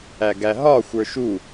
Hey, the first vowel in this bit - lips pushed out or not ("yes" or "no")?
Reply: no